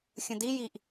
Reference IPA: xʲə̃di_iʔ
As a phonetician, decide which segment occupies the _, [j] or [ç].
j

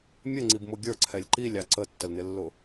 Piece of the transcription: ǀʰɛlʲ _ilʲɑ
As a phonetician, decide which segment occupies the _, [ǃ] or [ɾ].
ǃ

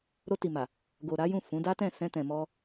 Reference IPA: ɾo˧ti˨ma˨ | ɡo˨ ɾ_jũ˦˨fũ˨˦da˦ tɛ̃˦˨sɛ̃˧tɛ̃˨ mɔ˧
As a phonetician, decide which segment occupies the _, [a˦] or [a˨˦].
a˨˦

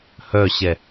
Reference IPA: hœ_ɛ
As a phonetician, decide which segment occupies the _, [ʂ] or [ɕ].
ɕ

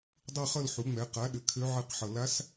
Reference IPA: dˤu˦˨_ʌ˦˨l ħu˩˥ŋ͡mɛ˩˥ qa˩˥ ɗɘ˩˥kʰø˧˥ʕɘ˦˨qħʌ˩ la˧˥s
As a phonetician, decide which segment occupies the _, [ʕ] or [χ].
χ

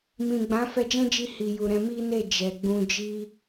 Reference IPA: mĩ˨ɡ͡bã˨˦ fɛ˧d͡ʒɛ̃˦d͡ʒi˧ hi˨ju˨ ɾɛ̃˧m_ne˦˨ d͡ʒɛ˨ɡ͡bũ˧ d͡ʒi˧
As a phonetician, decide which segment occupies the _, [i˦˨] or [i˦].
i˦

